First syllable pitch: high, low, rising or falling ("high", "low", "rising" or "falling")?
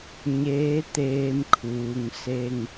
rising